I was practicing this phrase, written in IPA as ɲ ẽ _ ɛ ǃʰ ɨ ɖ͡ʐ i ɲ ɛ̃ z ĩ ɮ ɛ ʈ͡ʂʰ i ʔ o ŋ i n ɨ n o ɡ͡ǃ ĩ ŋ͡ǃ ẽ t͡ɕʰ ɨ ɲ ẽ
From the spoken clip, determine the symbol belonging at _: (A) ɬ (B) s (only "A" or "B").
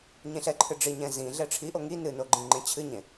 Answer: A